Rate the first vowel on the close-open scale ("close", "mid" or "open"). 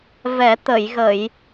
mid